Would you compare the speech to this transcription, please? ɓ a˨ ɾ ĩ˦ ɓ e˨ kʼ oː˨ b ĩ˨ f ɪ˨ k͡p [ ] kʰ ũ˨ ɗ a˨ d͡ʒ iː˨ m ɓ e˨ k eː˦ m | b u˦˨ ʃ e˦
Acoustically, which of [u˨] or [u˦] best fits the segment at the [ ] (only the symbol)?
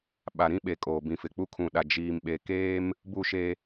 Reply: u˦